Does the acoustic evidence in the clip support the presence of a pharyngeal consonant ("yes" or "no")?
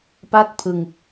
no